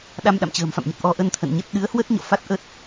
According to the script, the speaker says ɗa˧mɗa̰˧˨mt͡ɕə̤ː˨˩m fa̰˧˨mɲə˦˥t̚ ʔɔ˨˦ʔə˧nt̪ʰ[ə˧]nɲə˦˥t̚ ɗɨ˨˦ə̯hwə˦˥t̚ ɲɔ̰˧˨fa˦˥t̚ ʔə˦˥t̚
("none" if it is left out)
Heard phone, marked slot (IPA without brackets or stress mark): ə̰˧˨